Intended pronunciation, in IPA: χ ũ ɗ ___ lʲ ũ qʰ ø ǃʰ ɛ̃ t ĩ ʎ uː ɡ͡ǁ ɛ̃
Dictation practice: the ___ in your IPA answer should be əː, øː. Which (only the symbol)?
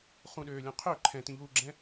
øː